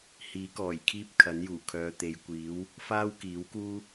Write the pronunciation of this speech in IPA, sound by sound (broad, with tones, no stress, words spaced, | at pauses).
hiː˨˥kɔː˨˩jkʰiː˥p̚ kʰɐ˨˥njuː˨˩ kʰœː˨˧t̪e˨˧jkʷiː˨˥w | faː˥wkiː˨˥wkuː˥